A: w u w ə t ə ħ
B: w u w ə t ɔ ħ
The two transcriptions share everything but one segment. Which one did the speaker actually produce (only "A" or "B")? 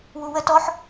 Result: B